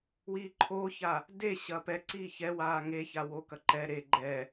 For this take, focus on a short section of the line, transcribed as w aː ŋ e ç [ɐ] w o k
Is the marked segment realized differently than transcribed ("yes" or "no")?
yes